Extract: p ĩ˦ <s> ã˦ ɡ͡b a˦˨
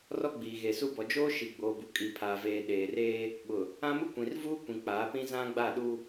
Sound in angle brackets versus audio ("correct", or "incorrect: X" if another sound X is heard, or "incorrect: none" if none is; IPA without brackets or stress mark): incorrect: z